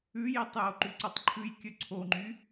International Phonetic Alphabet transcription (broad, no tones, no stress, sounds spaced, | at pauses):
ʉ j i tˤ j o ǃ ʉ ǀ o tˤ ǃʰ ʉ j kʲ ɵ ǀʰ o ŋ͡ǃ y